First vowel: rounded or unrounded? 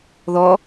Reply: rounded